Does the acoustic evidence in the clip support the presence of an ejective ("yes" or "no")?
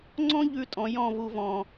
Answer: yes